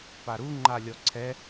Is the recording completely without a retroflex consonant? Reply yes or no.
yes